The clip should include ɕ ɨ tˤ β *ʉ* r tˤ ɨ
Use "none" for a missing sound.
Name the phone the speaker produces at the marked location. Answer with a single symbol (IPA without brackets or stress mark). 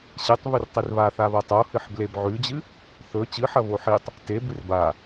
ʉ